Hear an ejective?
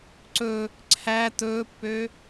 no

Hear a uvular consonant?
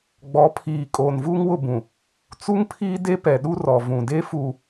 no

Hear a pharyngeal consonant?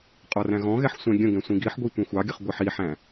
yes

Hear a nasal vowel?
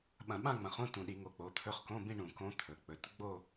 yes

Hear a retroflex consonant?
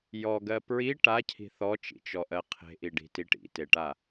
yes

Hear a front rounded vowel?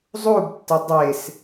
no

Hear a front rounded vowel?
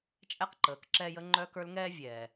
yes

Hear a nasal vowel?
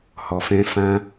yes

